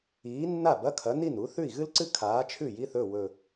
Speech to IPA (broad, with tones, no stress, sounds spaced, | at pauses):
iː˨˥ nː a˥˩ b ɐ˧˥˧ kʰ ɐ˨˥ n i˥˩ n u˨˥ θ ʉ˥˩ i̯ ɣ ɨ˥ l ǀ ɨ˥ kʰ aː˨˥ t͡ʃʰ ʉ˥˩ j i˧˥˧ θ ɵ˥˩ w ɵ˨˩